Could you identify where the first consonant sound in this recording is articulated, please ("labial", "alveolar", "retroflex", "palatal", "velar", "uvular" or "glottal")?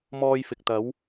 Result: labial